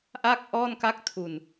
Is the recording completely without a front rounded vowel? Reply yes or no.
yes